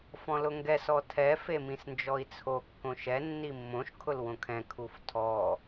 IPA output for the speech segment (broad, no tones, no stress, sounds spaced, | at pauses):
f ɔ̃ l ʊ ŋ ɡ ɛ s ɔ tʰ ɛ f e m ĩ s n d͡ʒ ɔ i̯ t͡sʰ o kː õ ʃ ɛ nː i mː õ ʃ kʰ ʊ l w õ kʰ ɛ̃ kʰ u f tʰ ɔ